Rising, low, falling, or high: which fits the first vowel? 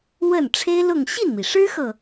falling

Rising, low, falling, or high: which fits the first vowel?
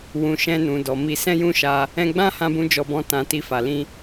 low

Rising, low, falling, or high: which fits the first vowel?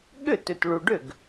falling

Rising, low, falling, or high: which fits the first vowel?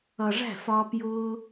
low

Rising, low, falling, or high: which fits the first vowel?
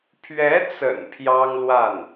rising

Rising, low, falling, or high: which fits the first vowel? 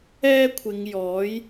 high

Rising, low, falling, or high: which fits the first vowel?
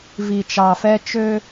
low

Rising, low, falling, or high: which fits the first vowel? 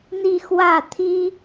falling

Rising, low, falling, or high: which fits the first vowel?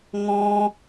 high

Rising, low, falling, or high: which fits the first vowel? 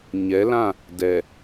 rising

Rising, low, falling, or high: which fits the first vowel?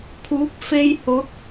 rising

